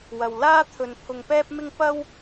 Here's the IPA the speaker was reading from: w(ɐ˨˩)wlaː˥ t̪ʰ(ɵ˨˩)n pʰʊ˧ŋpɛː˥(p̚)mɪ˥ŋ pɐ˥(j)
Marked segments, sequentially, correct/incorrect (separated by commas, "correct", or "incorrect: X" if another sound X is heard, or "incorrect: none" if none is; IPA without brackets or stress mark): incorrect: ɐ˨, incorrect: ɵ˨, correct, incorrect: w